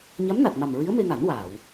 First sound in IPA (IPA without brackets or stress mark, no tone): ɲ